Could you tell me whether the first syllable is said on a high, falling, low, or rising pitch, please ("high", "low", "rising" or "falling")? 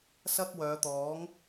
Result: high